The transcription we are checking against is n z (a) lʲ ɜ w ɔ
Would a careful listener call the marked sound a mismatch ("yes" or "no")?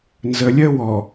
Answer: yes